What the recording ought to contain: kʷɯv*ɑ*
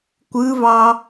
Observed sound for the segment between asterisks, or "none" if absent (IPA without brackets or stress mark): ɑ